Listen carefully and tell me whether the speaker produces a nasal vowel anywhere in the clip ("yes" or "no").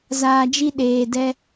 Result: no